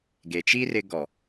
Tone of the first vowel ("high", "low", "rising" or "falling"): low